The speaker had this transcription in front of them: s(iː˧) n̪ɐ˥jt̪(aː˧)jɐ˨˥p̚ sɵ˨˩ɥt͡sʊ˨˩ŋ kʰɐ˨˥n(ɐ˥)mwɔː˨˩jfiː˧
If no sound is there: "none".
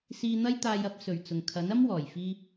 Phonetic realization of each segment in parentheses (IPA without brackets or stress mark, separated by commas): iː˧, aː˧, ɐ˥